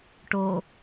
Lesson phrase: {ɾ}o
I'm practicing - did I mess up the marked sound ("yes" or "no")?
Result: yes